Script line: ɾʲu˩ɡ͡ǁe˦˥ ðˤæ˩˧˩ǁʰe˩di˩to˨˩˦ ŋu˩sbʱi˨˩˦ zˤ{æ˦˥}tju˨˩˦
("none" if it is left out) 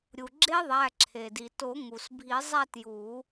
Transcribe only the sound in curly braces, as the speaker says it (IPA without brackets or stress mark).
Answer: æ˥˧